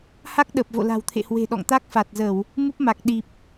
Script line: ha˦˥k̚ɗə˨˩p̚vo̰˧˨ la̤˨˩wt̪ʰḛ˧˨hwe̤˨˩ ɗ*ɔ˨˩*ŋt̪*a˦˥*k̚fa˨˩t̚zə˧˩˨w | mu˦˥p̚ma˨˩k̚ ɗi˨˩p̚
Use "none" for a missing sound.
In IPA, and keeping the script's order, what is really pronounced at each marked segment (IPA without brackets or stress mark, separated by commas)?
ɔ̰˧˨, a˦˥